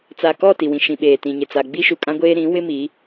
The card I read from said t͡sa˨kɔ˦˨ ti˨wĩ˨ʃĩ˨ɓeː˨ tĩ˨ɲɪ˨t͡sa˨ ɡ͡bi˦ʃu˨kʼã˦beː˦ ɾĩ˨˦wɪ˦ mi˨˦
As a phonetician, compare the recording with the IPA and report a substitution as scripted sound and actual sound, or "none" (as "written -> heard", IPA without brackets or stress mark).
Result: b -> ɡʷ